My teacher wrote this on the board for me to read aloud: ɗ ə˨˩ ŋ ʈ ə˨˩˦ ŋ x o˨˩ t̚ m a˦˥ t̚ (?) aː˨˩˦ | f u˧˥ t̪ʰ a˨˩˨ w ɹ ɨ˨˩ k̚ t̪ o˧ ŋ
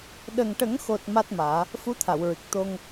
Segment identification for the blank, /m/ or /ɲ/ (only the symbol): m